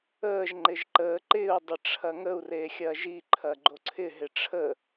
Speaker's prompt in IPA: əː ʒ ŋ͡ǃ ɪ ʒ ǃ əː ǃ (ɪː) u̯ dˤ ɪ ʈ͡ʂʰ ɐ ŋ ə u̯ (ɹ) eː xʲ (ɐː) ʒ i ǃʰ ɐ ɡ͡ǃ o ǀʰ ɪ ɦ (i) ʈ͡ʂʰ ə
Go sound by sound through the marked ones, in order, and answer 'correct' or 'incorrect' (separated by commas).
correct, incorrect, correct, incorrect